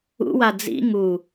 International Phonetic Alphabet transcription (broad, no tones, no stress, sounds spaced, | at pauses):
ṵ w a d͡z ḭ ŋ u